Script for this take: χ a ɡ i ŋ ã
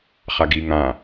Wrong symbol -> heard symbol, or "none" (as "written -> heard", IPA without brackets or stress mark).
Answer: none